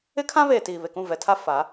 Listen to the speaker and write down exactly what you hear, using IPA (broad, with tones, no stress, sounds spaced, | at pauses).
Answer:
ɪ˦ kʰ ã˦ β eː˨ t iː˨ β e˨ k ũ˦˨ v ɛ˨ tʰ a˦ f a˨˦